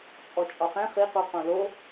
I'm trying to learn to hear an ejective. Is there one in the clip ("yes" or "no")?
yes